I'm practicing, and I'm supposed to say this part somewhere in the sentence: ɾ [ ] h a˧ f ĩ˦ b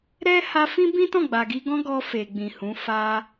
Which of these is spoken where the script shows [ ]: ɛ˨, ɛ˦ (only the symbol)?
ɛ˦